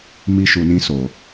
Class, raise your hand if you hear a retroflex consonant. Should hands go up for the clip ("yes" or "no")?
no